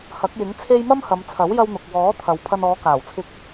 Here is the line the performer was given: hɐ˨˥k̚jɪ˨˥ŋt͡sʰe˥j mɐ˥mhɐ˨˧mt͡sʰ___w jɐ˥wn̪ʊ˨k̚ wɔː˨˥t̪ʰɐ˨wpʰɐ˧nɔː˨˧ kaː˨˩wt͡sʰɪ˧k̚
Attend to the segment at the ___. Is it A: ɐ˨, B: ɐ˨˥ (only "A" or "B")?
B